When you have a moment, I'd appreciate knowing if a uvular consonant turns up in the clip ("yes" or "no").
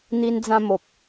no